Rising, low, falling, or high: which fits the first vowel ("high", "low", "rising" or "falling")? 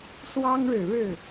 high